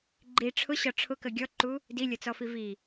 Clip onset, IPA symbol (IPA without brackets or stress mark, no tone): ɡ͡ǃ